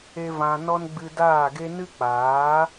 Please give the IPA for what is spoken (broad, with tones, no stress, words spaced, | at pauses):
e˦vã˧ nɔ˦n ɡ͡bɨ˧daː˦˨ɡe˦ nɨ˦k͡paː˨˦